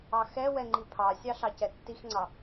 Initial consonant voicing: voiceless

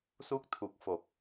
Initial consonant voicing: voiceless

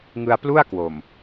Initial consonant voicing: voiced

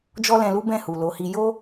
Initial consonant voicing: voiced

